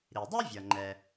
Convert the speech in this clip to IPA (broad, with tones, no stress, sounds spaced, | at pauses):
ɾ i˩ dˤ ɯ˥ vʲ ʌ˩ ŋ͡ǃ ɛ˩